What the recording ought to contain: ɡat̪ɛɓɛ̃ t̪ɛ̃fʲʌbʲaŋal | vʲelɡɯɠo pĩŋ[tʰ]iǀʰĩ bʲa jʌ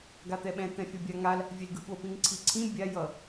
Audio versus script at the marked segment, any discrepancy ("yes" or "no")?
yes